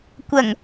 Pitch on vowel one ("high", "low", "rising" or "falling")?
low